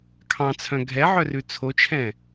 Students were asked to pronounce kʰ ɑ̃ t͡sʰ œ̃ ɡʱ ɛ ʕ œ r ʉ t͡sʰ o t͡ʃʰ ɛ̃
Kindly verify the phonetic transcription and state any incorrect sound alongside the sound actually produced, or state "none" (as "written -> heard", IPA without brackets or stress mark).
none